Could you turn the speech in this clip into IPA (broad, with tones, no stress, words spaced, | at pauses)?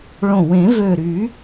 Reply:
ɭõ˧˩wẽ˨˩˦vø˧˩ ɾy˨˩˦